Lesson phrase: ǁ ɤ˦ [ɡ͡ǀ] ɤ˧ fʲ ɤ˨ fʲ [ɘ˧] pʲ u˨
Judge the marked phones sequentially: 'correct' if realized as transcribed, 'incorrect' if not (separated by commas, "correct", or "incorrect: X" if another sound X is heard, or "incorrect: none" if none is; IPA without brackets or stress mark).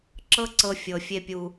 incorrect: ǀ, incorrect: e˧